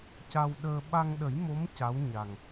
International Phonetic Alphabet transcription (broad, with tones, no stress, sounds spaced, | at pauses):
c a˧ w ɗ əː˧ ɓ a˧ ŋ ɗ ə˨˩˦ j m o˧˥ m c a˧˥ w ɲ a˨˩ ŋ